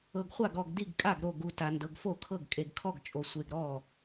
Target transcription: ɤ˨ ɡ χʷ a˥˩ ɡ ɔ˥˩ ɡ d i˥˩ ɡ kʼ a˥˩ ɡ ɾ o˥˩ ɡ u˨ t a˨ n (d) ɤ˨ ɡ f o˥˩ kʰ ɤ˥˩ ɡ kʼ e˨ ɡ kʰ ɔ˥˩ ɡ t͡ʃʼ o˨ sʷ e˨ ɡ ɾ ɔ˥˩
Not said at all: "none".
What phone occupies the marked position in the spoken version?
d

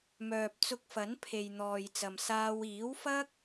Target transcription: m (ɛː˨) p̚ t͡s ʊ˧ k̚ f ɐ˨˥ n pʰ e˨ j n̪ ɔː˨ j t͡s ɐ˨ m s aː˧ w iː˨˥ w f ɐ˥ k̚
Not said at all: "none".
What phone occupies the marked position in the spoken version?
œː˨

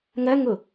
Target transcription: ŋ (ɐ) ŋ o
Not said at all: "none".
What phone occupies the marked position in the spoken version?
ɐ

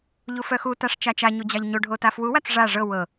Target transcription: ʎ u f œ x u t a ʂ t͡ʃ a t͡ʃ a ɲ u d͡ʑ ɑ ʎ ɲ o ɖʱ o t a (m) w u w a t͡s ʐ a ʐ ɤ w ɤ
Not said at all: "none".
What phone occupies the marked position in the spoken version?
f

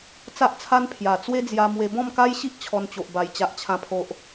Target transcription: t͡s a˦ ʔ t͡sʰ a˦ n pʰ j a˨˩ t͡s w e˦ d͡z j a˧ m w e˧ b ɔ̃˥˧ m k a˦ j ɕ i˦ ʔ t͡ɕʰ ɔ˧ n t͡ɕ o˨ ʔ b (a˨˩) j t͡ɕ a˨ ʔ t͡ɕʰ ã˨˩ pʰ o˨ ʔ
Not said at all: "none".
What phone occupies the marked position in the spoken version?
a˨˩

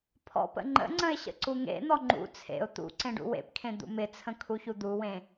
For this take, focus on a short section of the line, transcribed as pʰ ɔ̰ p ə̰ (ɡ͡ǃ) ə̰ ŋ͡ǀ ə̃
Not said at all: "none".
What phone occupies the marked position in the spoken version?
ŋ͡ǃ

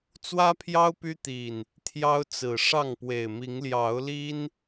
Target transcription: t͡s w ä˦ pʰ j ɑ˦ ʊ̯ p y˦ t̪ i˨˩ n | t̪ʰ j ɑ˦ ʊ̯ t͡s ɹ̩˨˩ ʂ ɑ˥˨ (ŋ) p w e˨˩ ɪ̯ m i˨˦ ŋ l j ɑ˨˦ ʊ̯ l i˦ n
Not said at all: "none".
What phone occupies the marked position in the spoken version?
ŋ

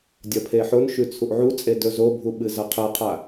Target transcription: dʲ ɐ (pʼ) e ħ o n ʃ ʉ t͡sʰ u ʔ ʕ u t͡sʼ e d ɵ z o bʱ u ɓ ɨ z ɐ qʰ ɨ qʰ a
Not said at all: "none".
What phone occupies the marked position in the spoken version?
pʰ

